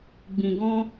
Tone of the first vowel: low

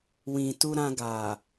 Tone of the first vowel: low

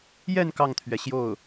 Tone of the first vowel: falling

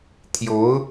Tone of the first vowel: rising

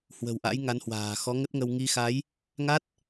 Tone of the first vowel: low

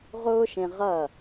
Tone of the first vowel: high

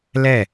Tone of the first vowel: falling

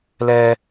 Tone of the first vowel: high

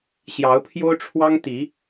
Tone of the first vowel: rising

